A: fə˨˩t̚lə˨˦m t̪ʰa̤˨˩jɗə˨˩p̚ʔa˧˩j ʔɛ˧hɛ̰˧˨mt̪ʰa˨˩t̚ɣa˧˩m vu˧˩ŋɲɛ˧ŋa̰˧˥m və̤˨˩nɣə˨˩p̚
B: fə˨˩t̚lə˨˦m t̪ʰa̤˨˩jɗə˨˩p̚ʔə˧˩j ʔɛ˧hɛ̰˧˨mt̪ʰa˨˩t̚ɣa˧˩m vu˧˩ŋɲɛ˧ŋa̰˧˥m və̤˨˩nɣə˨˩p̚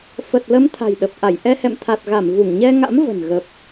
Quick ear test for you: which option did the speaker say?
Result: A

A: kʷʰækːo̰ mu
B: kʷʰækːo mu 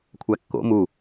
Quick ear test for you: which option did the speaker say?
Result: A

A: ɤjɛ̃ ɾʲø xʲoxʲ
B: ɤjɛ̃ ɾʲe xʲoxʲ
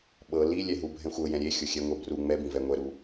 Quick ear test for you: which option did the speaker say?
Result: B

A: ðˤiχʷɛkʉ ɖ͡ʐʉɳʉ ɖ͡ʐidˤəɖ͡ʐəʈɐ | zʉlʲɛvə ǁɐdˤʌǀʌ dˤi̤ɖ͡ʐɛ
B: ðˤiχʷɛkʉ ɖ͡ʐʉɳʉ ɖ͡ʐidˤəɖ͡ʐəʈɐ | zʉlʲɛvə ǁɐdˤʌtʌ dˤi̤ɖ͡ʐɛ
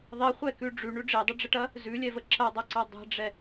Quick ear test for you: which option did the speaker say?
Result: A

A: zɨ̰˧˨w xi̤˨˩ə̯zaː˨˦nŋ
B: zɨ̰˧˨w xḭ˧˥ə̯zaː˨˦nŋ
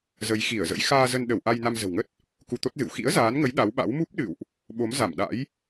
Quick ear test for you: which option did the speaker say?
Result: B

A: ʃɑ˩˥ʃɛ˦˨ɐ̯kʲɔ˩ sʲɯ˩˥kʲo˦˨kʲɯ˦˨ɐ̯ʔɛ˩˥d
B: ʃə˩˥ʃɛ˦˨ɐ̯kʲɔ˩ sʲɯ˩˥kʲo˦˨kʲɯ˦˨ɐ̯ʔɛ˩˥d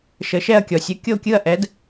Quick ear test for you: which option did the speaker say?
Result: B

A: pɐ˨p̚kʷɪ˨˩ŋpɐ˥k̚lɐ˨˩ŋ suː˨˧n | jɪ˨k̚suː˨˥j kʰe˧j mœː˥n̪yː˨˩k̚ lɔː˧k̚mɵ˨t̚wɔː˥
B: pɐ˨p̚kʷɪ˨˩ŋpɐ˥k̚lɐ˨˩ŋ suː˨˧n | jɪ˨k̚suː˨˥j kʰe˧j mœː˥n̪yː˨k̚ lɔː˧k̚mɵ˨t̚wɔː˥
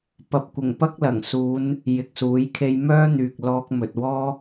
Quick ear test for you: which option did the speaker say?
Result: B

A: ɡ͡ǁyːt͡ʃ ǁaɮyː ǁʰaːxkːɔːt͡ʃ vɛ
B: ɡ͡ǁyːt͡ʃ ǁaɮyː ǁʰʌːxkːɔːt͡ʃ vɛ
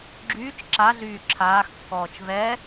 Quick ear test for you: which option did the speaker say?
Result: A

